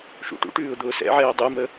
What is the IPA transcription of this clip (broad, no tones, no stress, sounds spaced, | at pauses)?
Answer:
ʃ ṵ ʈ ṵ ʈ ʉː ʊ̯ d̪ ʊː s ɛ̰ ʕ ɛː dˤ ɯ m ə